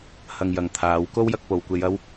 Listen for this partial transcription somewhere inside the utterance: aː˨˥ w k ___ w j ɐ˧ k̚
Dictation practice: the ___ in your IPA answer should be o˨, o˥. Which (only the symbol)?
o˥